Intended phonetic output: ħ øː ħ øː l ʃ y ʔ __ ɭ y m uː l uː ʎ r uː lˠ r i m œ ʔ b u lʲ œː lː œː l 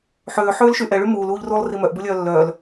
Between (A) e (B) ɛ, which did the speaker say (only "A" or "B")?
B